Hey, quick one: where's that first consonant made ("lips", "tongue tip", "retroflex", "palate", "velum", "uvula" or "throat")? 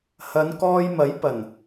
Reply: throat